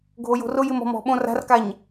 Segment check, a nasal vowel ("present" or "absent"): present